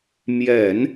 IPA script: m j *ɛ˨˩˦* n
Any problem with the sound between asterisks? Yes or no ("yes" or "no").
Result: no